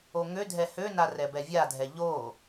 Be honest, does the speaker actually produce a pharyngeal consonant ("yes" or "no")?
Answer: no